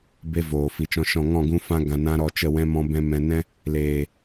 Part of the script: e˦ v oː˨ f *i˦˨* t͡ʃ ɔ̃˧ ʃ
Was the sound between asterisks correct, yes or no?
no